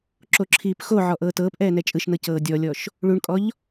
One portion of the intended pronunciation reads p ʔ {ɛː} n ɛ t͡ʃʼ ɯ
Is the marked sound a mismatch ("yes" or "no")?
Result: no